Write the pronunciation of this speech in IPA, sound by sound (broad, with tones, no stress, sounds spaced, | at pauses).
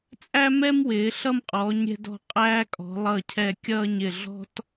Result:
t͡sʼ æ˥ m ɛ˥ m w ɪː˩˧ ɬ ʌ˥˧ m qʼ ɔː˩˧ ɲ ɾʲ ɛ̤˧ d ɔ̤˧˩ qʼ æː˥ kʼ ɔ̤˩˧ lˠ ʌː˧˩ cʰ ɛ˧˩ kʲ ʌː˥˧ ɲ ɪ˧˩ ɮ ɔ̤˥ t